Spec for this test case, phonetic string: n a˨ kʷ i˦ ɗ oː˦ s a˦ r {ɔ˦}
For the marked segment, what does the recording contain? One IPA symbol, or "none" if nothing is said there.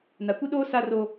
o˦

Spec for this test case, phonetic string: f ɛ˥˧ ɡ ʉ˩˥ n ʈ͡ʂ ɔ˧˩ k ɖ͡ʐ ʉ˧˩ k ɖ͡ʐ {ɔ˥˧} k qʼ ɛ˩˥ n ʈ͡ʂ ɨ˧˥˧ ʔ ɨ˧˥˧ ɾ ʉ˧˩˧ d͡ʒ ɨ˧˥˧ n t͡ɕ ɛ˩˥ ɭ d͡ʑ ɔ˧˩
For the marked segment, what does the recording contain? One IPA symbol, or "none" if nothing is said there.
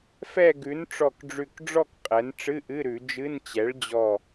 ɔ˥˧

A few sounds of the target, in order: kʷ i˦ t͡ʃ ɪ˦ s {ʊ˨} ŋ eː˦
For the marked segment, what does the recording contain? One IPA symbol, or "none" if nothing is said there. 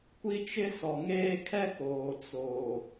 ɔ˨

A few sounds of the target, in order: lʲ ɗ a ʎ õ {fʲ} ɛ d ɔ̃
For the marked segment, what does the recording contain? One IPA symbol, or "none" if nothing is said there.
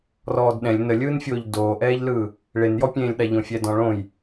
fʲ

